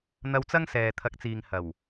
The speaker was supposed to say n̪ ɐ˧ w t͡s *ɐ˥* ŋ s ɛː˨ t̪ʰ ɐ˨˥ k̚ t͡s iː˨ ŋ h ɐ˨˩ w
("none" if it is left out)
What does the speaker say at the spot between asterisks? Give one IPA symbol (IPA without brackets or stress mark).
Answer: ɐ˥